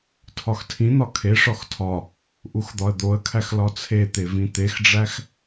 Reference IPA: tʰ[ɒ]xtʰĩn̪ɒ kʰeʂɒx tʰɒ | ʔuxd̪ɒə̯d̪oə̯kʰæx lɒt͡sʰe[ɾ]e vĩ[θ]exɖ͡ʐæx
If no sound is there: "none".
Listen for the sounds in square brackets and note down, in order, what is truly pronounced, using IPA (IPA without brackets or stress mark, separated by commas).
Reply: ɒ, t̪, t̪